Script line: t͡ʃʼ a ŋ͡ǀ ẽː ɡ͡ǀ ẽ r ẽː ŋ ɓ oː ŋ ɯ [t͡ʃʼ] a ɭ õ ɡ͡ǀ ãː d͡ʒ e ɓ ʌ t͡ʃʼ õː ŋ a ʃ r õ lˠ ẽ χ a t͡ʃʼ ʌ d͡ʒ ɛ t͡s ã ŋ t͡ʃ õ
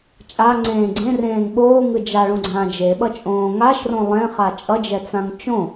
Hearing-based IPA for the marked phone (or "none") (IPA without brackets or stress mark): d͡ʒ